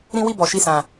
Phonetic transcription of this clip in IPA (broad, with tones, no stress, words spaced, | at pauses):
ɾĩ˦ wi˦˨bɔ˨ʃi˧sã˨